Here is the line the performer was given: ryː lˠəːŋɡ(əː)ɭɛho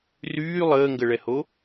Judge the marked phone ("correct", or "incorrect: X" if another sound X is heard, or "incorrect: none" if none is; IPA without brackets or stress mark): incorrect: ə